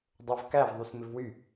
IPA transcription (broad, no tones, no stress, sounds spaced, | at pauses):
dˤ o v k æ v ðˤ y s m ɪ v w y